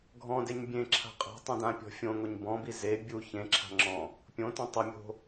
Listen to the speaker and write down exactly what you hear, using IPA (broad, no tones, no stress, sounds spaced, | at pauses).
ɡʱ ɔ̃ d e ɲ bʲ ẽ ǁʰ a̤ qʼ a̤ tˤ õ d ã pʲ ɔ̤ fʲ õ ŋ o ɲ b ɔ̃ b i z e bʲ u ç ẽ ǁʰ a̤ ŋ͡ǁ ɔ̃ | pʲ õ t õ tˤ ʊ mʲ o̤